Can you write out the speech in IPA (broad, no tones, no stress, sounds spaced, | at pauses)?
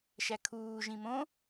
ʃ æ kʰ uː ʒ ĩ m õ